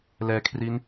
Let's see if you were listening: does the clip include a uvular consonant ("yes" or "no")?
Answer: no